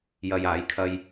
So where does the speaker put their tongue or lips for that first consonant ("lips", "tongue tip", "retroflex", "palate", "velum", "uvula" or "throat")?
palate